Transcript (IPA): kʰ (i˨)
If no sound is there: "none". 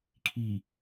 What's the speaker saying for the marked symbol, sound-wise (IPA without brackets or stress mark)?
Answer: i˨